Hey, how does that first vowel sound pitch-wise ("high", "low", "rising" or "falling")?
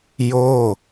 falling